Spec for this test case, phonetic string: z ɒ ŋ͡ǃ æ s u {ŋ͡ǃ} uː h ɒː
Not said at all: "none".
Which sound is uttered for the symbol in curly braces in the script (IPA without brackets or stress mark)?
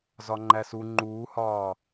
ŋ͡ǃ